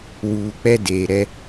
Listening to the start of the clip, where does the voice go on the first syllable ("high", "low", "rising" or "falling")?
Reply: low